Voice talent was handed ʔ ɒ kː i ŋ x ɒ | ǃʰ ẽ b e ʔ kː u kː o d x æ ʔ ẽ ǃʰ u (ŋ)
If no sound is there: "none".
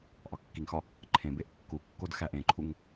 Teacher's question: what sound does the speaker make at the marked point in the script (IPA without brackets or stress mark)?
ŋ